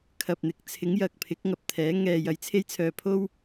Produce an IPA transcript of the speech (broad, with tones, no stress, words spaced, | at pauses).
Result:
kʰɐ˨p̚n̪ɪ˨˥k̚t͡sʰɪ˨˥ŋ jɐ˨k̚pʰɪ˨˥k̚ ŋɐ˨p̚t̪ʰɛː˨˥ ŋɛː˨jɐ˨˥jt͡sʰe˥jt͡sʰœː˨ pʰo˥w